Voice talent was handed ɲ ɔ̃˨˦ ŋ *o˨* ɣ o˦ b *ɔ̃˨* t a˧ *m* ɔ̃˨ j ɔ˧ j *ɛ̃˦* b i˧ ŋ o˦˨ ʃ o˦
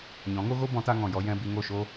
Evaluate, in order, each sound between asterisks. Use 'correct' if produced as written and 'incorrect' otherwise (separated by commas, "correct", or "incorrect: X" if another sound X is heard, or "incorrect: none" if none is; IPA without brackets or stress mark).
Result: incorrect: o˦, incorrect: ɔ̃˨˦, incorrect: ŋ, correct